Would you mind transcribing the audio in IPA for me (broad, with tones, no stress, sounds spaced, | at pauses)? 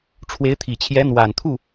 ʈ͡ʂʰ w e˧˥ ɪ̯ t̪ʰ i˨˩ t͡ɕʰ j ɛ˧˥ n̪ w a˨˩ n t̪ʰ u˥˩